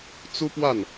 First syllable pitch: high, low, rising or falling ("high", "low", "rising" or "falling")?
high